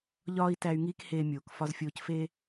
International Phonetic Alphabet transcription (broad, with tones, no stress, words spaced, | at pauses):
ʎɒː˦i̯tæ˧y̯ŋiː˦k heː˦ mʲoː˨k fɒ˧zfʲoː˧cfeː˦